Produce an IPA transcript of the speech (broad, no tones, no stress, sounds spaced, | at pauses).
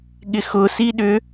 ɠ ɪ x ʊ s i ɗ ʏ